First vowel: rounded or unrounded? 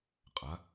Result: unrounded